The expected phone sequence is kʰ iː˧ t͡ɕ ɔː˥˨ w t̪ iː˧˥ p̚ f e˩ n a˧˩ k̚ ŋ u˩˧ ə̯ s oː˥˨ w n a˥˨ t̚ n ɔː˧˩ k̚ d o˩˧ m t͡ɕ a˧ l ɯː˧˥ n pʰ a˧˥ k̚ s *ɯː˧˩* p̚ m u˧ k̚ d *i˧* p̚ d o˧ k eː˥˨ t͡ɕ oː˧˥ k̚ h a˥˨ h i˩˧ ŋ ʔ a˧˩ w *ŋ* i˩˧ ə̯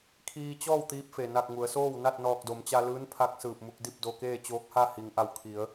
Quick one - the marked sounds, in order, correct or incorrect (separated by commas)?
correct, incorrect, incorrect